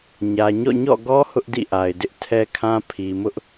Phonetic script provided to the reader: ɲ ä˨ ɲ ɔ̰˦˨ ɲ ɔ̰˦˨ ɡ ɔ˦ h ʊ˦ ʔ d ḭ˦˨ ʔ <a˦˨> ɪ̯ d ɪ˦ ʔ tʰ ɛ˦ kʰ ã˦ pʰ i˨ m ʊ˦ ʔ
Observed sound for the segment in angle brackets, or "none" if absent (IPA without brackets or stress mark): a˨